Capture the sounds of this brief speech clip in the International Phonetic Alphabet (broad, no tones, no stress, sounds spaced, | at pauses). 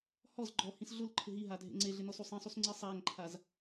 h ɔ z ɡ͡ǃ ɔ h ĩ s ɮ ʊ l ǃʰ ɪ ɦ i ɦ a dʱ ḛ ŋ͡ǀ e ɮ ɪ n ɔ s u sˤ ẽ sˤ u s ŋ͡ǀ i sˤ a ŋ ǃʰ a z